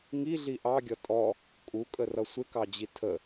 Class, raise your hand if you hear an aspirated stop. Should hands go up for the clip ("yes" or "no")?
yes